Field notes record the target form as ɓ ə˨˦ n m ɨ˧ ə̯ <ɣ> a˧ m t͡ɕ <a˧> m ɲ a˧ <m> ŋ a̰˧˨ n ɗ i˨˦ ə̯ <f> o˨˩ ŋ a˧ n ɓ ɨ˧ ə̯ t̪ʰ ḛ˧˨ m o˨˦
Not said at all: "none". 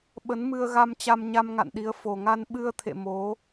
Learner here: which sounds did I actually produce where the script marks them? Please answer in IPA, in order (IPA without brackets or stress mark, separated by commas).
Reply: ɣ, a˧, m, f